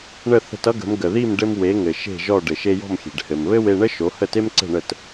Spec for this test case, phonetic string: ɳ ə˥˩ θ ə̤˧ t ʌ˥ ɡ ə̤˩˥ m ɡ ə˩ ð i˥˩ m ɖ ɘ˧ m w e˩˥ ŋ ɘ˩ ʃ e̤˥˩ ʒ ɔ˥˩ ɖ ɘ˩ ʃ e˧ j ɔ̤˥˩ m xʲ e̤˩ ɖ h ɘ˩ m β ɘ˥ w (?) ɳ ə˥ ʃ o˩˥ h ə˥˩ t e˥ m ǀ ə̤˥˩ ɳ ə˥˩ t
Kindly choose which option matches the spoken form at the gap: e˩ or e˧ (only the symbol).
e˧